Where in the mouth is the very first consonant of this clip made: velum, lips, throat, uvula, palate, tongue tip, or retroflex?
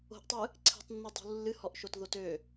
throat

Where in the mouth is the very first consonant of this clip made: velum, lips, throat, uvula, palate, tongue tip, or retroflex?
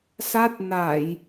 tongue tip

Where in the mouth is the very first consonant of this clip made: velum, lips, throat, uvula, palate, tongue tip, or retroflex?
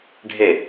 retroflex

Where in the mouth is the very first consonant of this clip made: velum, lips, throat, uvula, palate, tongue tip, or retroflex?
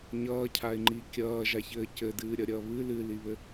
palate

